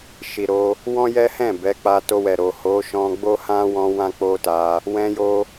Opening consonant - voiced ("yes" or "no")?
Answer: no